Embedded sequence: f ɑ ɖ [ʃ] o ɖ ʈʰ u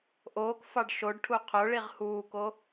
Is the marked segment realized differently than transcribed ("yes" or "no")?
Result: no